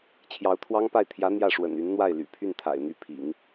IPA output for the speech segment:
t͡ɕʰ j ɑ˧˥ ʊ̯ t̪ʰ w ɑ˥ ŋ p a˥˩ ɪ̯ t̪ʰ j ä˧˥ n̪ j ä˥˩ ʂ w ə̰˨˩ n y˧˥ n n̪ w a˥˩ ɪ̯ l y̰˨˩ pʰ y˥˩ n t̪ʰ a̰˨˩ ɪ̯ n̪ y˥˩ pʰ ḭ˨˩˦ ŋ

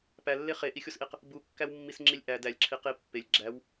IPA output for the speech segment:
p æ lː e χ e ʔ i xʲ o s ʔ i q | b u kː æ w mː i s ŋ͡ǁ i lʲ ʔ æ d æ lʲ ǁʰ i q i pː e lʲ ɡ͡ǁ æ w

